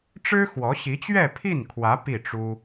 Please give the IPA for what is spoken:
ʈ͡ʂ ɻ̩˥ x w ɔ˧˥ ɕ i˧˥ t͡ɕ ɥ ɛ˥˧ pʰ i˥˩ n kʰ w ä˧˥ p i˥˩ ʈ͡ʂ u˥

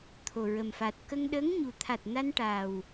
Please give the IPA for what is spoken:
t̪ʰ o˨˩ ɹ ə˨˩ m f a˨˩ t̚ k ə˧ ŋ ɗ ə˧˥ ŋ ɲ u˨˩ t̪ʰ a˨˩ t̚ n a˧ n ʈ a˨˩ w

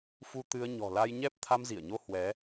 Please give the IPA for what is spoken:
f u˧ t̪ ɨ˧ ə̯ ɲ ɔ̤˨˩ l a˧ j ɲ ɛ˦˥ p̚ t̪ʰ a˧ m z i˧˩ ə̯ ɲ o˧ h w ɛ˨˦

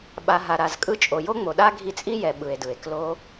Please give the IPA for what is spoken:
ɓ a˨ ɦ a˨ ɾ a˨ z kʼ ɯ˧ t͡ʃʼ o˨ j o˦ ŋ͡m o˨ ɗ a˦ ɡʱ i˧ t͡sʼ i˦ j ɛ˧ ɓ ɯ˨ e̯ d ɯ˨ e̯ k l o˧

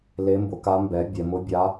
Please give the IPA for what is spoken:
l e˧˥ m b ʊ˩˥ k a˧˥ m b ɛ˩˥ bʲ ɛ˩˧ m ʊ˧˥ bʲ a˧˥

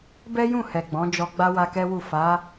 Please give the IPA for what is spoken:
b ɛ˦ j ũ˦˨ h ɛ˨ ɡ͡b ɔ̃˨˦ d͡ʒ ɔ˧ ɡ͡b a˦ w a˧ k ɛ˦ w u˦˨ f a˨˦

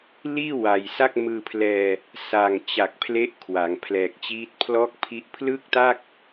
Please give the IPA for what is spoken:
l iː˥˩ w a˨˩ j s a˥˩ k̚ m ɯː˧ pʰ l ɛː˧ | s a˨˩ ŋ t͡ɕ a˨˩ k̚ pʰ l e˦˥ ʔ kʰ w a˩˦ ŋ pʰ l ɛː˨˩ k̚ t͡ɕ iː˦˥ t̚ pʰ l ɔː˥˩ k̚ pʰ i˦˥ ʔ pʰ l ɯː˥˩ k̚ t a˥˩ k̚

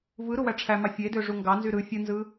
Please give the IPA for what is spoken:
v ɯ ɾ u w æ ʈ͡ʂʰ æ m ɑ fʲ e d ø ʐ u ŋ ɡ ɑ n z y ɾ ɯ fʲ ɯ n z ɯ

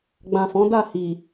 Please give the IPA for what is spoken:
ɡ͡b ã˨ f ɔ̃˨˦ d a˦˨ h i˨

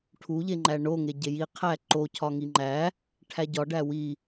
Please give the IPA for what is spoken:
ʈʰ u ʎ e ŋ͡ǃ æ ɳ o ŋ e ɟ e j i qʰ æ ǃ o cʰ ɒ ŋ i ŋ͡ǃ æ | ʈʰ æ ɟ ɒ ɖ æ w i

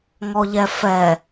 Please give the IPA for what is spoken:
ŋ ɔ ʎ ɛ f ɛ

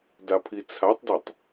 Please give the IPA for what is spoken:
d a pʰ i t͡sʰ a tˤ d e tˤ

